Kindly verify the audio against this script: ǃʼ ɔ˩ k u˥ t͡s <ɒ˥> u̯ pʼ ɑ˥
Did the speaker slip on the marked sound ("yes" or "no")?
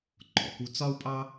no